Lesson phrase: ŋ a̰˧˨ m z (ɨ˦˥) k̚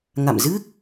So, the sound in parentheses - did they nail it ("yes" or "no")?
yes